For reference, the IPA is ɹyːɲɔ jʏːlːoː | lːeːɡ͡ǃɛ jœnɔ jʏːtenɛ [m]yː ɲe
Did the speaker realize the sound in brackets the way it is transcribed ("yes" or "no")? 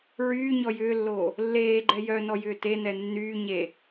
no